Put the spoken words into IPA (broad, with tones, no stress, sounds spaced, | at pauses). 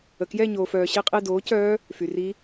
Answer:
ə˨ k j ɛ˥˧ ɲ oː˨ f œː˨ ɕ e˥˧ qʼ e˥˧ d oː˨˥ c œː˦˥ | f y˨ r i˦˥